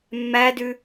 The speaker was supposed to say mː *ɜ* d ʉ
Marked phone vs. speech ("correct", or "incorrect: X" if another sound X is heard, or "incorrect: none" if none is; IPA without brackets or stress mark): incorrect: æ